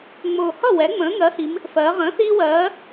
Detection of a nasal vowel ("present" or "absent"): present